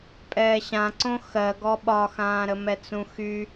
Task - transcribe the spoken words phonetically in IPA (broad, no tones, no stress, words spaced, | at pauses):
pʼɛːɕãǀõ xɜ ɡɔɓɒxãːɾə mɛt͡sũxy